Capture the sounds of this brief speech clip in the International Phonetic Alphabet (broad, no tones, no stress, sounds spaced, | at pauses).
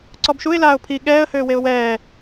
ǀ ɔ b ʃ u ɪ̯ l aː ʊ̯ pʰ i ɠ ɛː ə̯ h øː w e ʊ̯ w ɛː